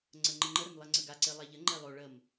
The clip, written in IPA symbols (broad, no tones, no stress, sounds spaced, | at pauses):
ŋ͡ǀ ə ŋ͡ǃ ɪ ŋ͡ǃ ə ɾ ɪ m lˠ e ŋ͡ǀ ə ɡ a ǀ e lˠ a ʎ ə ŋ͡ǃ e lˠ o ɭ ə m